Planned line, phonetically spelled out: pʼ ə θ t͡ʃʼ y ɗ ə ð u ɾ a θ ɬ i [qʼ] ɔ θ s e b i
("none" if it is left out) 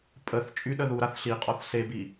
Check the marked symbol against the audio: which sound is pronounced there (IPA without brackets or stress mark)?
qʼ